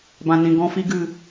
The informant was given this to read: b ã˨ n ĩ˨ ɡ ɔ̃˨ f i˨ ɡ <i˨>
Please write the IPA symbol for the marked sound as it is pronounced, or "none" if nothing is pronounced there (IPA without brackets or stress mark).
ɨ˨